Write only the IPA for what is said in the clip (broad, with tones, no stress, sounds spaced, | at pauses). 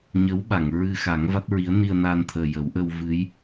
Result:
ɲ ə˧˥ w ɓ a˨˩˨ ŋ ɹ ɨ˧ x a˨˩˦ ŋ v a˦˥ t̚ ɹ i˧˥ ə̯ n i˧ ə̯ n a˧ n t̪ʰ əː˨˩ j ə˨˩˦ w ʔ ə˧ w v ɨ˧˥ j